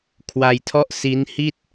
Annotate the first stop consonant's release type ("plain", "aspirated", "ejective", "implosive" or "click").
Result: aspirated